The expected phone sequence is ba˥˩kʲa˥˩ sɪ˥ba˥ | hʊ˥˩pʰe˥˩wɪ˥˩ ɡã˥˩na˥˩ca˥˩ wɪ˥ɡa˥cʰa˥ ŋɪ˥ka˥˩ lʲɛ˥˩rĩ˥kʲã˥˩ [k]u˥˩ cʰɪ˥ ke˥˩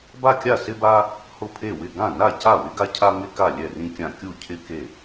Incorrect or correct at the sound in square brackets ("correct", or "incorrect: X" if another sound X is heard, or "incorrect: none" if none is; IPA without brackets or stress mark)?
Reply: incorrect: kʲ